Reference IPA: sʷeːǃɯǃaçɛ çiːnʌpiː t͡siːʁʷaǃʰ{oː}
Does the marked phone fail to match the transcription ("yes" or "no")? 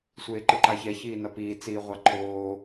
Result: no